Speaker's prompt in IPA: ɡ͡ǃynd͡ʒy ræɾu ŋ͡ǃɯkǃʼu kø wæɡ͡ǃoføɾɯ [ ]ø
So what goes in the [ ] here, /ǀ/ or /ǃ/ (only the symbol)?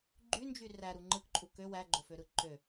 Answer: ǃ